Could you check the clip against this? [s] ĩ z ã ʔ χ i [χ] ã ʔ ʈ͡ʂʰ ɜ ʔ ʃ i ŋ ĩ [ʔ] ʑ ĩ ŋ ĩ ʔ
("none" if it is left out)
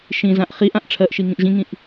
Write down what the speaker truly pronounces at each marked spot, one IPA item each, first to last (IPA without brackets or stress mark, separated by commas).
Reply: ʃ, ʔ, ʔ